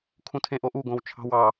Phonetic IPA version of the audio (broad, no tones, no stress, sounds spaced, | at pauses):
kʰ ũ tʰ ẽ ʔ o ʔ u ɡ õ w t͡ʃʰ ɑ̤ w ɑ